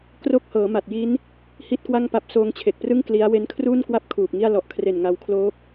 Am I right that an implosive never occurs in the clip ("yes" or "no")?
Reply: yes